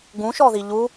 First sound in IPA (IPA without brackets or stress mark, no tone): ɡ